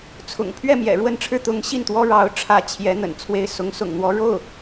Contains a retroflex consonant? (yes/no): yes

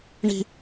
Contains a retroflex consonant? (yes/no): yes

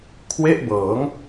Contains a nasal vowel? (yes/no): no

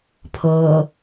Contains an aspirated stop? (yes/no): yes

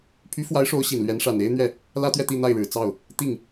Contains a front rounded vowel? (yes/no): yes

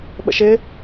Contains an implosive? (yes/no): yes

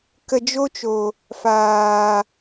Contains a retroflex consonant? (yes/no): no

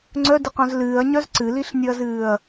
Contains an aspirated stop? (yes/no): no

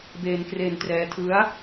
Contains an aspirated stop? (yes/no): yes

